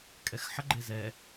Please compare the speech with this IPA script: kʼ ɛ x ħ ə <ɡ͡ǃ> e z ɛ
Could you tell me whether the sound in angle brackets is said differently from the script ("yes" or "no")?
no